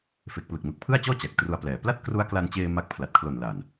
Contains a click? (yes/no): no